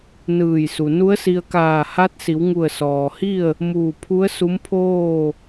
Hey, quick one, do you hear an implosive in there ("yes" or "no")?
no